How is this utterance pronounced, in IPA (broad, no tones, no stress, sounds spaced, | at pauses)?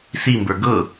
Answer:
s i m b ə˞ ɡ ɤ